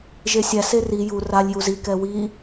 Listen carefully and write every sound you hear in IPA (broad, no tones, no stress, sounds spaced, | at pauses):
ʒ e sʲ æ s e r i j u r a lʲ j u z i k ɛ w i